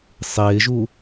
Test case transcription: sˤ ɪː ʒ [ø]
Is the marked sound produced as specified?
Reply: no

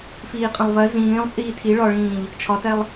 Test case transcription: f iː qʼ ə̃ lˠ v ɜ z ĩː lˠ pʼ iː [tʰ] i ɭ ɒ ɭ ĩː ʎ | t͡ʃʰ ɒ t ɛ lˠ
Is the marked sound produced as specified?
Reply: yes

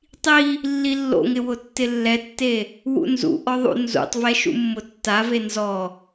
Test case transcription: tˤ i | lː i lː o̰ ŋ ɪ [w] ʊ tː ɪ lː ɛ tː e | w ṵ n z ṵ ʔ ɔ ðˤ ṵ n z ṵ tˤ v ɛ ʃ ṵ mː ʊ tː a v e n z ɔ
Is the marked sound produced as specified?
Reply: yes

